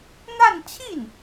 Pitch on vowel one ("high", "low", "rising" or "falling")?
falling